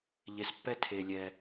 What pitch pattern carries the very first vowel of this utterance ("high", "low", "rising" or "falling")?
low